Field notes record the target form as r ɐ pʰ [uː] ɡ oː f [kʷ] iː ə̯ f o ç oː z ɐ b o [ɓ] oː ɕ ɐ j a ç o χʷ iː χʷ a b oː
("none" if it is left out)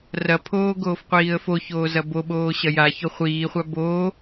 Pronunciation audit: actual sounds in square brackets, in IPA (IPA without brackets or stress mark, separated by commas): oː, qʷ, ɓ